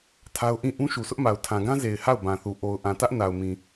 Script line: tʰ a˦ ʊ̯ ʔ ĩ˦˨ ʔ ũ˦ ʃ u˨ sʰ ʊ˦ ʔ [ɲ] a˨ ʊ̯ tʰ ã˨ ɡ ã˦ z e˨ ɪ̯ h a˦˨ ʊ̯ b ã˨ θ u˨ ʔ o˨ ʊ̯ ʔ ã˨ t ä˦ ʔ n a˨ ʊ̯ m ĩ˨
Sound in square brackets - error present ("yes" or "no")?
yes